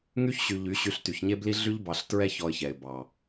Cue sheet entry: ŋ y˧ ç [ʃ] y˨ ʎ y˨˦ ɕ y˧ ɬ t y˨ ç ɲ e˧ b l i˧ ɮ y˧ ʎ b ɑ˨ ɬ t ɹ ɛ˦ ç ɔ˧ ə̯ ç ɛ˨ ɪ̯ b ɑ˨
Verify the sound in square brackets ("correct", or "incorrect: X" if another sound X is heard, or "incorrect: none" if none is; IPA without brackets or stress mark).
incorrect: ɕ